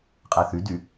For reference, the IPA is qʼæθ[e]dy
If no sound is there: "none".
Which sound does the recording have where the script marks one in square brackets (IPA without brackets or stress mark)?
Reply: y